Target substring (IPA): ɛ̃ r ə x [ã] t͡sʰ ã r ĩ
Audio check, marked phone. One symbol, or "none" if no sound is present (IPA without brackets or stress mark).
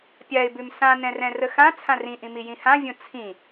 ã